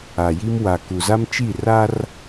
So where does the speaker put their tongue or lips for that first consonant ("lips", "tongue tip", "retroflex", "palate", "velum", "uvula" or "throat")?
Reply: palate